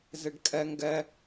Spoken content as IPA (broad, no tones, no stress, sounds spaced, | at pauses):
z e ɖ kʼ ɛ ŋ ɡ ɛ